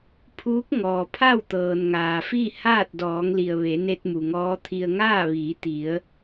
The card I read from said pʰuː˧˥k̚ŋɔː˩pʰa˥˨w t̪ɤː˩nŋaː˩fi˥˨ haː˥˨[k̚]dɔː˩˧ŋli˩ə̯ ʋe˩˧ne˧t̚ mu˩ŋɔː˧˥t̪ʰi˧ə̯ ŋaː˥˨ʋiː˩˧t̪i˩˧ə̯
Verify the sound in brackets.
incorrect: t̚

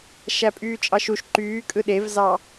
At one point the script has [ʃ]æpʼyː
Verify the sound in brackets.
correct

